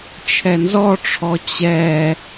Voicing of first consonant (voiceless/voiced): voiceless